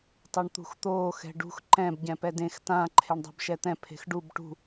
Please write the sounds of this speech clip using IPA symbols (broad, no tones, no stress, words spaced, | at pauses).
tˤoɳt̪ṳxt̪oː xɛ̤ɖṳx ǃɛ̃b ɟɛ̃pɛdẽx tã ǃʰeɳdˤɛ̤bʃɛt̪ɛ̃ pʰe̤xɖub ʈṳ